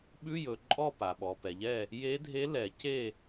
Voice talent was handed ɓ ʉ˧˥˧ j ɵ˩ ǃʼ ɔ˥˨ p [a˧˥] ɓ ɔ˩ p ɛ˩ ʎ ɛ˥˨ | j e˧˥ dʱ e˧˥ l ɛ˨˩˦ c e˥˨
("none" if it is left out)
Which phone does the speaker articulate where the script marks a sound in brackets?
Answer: a˩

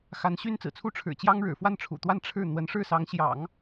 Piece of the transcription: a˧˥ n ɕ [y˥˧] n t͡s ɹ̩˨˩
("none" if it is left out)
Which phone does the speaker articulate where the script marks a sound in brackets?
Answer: y˥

